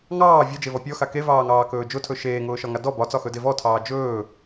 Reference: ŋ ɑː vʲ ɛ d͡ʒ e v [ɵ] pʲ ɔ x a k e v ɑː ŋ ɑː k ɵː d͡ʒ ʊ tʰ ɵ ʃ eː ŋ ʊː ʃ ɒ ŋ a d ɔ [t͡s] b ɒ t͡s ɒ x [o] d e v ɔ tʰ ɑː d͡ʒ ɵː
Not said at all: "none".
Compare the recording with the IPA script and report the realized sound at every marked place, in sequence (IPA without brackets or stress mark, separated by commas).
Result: ɔ, none, ɵ